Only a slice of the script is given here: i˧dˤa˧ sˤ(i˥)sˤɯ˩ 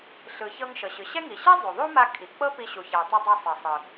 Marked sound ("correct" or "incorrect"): incorrect